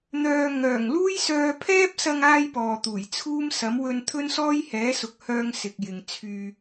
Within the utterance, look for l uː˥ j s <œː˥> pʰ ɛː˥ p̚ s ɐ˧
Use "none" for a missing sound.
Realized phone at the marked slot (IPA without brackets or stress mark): œː˧